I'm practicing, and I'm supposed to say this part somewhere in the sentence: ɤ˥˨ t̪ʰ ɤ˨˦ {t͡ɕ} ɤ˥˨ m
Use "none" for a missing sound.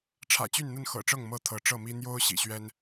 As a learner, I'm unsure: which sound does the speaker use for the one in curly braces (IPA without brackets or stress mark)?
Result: ʈ͡ʂ